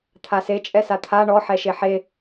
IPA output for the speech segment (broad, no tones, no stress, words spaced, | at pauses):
t̪ʰase t͡ʃʼɛsat̪ʰa ɳɔ ħɛʃeħe